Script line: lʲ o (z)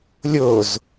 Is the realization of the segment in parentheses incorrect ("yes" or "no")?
no